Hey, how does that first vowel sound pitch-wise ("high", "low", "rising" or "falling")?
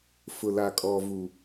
low